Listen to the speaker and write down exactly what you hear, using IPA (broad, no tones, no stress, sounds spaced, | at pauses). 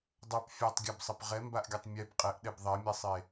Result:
dˤ ʌ p fʲ a tˤ ɡʲ a b sˤ ʌ p ʁ ɛ m b a ʔ ɡʲ ʌ tˤ mʲ ɛ b qʼ ɛ ʔ ɗ ɛ b ðˤ ɛ mʲ ɛ sˤ e